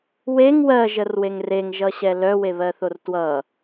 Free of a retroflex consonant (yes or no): yes